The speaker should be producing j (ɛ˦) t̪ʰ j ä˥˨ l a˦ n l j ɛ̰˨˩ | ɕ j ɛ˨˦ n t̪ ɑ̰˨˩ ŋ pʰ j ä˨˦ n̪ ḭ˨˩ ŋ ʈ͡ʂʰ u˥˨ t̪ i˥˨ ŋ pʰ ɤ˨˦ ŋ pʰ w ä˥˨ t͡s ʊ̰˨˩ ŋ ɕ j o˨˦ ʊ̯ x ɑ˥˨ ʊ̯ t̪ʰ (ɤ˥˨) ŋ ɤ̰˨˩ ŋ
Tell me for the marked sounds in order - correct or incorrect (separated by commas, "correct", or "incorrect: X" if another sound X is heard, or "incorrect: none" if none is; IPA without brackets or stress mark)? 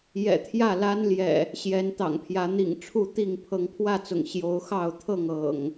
incorrect: ɛ̰˨˩, correct